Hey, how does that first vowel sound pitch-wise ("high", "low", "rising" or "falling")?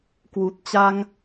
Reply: low